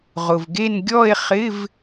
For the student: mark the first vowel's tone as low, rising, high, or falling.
low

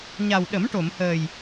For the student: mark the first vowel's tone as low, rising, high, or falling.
low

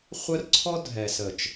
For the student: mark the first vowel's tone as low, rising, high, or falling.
high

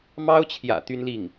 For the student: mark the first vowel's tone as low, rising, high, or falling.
high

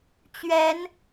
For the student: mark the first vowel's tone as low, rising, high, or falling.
rising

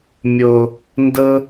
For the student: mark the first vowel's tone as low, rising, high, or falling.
low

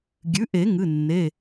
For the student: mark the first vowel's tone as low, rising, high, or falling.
rising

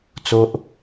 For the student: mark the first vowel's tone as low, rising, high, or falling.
high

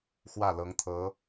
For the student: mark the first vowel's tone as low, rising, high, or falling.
falling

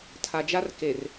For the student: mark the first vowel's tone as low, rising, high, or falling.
low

